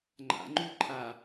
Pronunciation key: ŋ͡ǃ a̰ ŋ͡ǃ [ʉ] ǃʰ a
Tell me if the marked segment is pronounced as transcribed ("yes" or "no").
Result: yes